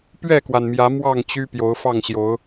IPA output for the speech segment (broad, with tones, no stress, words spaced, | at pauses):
pɥɛ˥˨kwa˩nmjä˨˦ mwɑ˥˨ŋt͡ɕy˦ pjo˨˦ʊ̯fɑ˥˨ŋɕjo˨˦ʊ̯